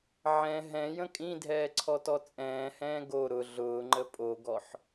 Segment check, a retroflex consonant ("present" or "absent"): absent